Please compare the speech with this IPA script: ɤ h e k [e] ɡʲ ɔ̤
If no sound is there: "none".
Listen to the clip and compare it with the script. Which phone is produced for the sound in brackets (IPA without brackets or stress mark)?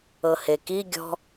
i